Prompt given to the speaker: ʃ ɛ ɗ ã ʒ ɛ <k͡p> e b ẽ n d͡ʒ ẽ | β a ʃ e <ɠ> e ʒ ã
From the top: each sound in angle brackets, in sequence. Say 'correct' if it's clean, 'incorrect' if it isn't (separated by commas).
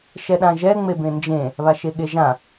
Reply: incorrect, correct